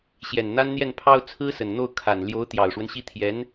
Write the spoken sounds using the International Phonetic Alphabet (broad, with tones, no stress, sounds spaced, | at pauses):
ɕ j ɛ˨˩ n n̪ a˥ n n̪ j ɛ˥˩ n pʰ ɑ˥ ʊ̯ t͡sʰ ɹ̩˥ s ə˨˩ n n̪ o˥˩ ʊ̯ kʰ a˨˩ n l j o˧˥ ʊ̯ t̪ j ɑ˨˩ ʊ̯ ʂ w ə˦ n ɕ i˥˩ t̪ʰ j ɛ˧˥ n